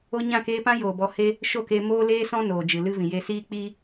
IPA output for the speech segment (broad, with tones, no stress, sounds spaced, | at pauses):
o˧ ɲ ã˦˨ k eː˧ p ã˦ j oː˨ b ɔ˨ h e˧ | ʃ o˦˨ k eː˧ m oː˦ l eː˦ s ɔ̃˦ n oː˨ d͡ʒ ɨ˨ l ɨ˦ v ĩ˨ j e˧ s iː˦ k͡p iː˦